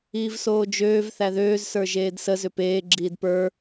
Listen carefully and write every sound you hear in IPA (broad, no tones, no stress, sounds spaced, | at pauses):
iː v s oː d͡ʒ øː v θ æ ð øː z s ə˞ ʒ eː d s ə z ʏ p eː ɡ͡ǁ iː d p ə˞